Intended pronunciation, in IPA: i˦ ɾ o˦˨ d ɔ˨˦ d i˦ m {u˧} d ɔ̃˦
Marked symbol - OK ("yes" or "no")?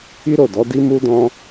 no